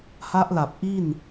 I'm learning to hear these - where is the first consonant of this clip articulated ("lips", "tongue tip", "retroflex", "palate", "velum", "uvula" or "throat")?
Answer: throat